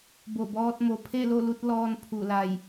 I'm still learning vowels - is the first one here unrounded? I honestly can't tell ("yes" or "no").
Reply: no